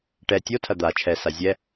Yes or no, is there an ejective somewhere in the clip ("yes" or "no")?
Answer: no